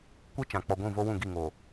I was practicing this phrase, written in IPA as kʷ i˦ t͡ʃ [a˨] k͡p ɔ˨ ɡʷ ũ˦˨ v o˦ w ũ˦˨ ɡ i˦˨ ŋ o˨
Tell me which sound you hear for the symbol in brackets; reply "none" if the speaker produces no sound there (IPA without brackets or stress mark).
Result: ã˨